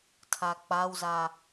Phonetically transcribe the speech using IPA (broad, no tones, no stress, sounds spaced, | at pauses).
tʰ a k͡p a w z a